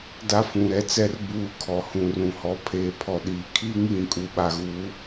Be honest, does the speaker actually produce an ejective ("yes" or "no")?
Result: yes